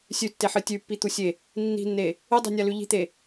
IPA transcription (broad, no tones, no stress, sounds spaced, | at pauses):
sʲ ʉ tː e ħ ɨ tʲ ʉ pː i t̪ u sʲ e | nː i̤ nː e | ɨ dˤ i̤ nʲ a l ʉ ʎ i̤ t̪ e